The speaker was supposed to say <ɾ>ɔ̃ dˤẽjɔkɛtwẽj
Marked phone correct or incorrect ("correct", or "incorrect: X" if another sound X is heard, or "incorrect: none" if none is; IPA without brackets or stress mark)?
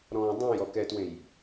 correct